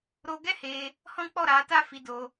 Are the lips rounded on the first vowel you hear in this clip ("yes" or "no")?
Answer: yes